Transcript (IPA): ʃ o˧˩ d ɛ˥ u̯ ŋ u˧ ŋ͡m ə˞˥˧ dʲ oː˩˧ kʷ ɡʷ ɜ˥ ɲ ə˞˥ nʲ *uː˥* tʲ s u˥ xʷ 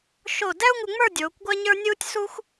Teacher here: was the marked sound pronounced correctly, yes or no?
yes